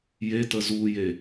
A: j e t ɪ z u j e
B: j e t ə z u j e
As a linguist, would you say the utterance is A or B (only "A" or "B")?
B